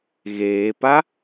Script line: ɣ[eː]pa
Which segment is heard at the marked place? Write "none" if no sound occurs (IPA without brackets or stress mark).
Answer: eː